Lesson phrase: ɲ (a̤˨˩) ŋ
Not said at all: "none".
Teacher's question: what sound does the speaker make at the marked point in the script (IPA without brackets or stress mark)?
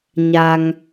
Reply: a˧